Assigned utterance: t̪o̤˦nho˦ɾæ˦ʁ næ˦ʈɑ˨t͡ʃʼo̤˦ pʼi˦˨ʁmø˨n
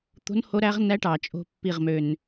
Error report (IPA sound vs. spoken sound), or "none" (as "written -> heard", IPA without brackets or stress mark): pʼ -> pː